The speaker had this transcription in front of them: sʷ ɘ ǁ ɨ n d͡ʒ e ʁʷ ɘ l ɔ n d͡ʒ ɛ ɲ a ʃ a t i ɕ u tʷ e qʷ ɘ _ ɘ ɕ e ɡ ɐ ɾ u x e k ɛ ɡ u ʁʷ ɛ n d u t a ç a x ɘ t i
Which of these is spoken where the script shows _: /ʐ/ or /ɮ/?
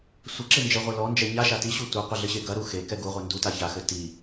ɮ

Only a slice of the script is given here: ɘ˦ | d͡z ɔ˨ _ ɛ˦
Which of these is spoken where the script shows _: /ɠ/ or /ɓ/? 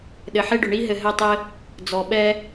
ɓ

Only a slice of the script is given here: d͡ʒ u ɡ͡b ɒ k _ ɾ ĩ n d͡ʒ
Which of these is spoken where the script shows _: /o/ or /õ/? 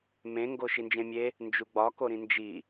o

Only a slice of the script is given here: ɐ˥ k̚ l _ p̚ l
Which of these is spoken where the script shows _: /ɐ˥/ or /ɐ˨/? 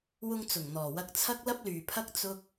ɐ˥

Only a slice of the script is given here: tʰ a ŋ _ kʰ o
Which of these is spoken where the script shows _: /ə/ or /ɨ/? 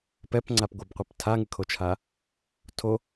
ɨ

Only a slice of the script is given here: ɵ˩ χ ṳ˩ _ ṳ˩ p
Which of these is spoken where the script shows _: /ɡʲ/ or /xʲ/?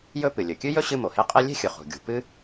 ɡʲ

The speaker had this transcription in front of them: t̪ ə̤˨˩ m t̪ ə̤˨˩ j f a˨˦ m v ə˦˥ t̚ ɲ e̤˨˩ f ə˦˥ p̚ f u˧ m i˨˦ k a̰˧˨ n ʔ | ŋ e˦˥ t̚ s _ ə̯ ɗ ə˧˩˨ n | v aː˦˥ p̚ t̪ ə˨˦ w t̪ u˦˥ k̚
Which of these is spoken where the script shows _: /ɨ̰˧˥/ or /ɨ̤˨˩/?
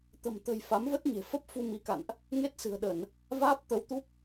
ɨ̤˨˩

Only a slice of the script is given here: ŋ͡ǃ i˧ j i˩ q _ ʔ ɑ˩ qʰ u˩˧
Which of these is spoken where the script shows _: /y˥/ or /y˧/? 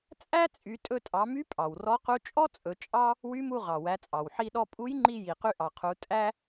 y˧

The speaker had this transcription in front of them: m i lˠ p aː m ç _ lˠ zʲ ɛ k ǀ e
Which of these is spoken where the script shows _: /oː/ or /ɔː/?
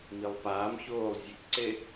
oː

